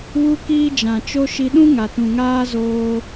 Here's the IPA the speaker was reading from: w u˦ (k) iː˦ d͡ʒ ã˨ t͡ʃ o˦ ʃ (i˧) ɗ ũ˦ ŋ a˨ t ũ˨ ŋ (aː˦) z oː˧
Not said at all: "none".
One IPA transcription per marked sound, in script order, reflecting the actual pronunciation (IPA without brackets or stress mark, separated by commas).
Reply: k, i˧, aː˦